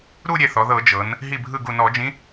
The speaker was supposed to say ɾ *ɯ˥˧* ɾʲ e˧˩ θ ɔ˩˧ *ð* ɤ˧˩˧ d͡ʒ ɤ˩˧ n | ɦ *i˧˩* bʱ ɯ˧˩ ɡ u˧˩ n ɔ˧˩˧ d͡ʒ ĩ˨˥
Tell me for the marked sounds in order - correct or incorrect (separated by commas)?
incorrect, correct, correct